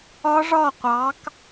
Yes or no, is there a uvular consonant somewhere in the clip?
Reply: yes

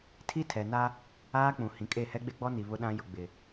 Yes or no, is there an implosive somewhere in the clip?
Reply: yes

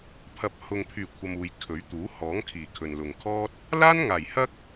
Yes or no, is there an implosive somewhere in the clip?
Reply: no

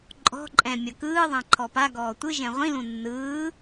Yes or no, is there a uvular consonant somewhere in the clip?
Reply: yes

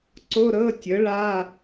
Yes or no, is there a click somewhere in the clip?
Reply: yes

